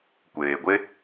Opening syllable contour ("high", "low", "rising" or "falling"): low